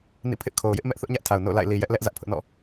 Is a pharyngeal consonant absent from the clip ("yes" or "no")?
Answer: yes